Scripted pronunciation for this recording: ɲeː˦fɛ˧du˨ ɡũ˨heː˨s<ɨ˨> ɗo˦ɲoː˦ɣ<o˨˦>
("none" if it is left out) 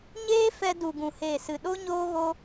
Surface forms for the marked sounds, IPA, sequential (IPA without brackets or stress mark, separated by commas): ɨ˨, o˦